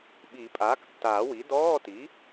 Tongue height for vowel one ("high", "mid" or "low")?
high